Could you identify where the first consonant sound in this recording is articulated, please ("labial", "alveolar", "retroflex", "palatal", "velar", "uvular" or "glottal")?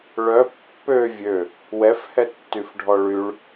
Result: retroflex